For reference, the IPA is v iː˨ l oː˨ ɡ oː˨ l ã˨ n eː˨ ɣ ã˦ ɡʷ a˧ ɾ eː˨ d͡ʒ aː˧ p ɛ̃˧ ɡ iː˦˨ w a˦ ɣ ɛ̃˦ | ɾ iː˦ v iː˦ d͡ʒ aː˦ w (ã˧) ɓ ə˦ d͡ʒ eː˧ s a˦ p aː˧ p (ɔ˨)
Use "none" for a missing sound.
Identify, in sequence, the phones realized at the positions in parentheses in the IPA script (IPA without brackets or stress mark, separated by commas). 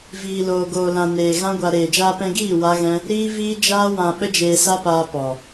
ã˧, ɔ˨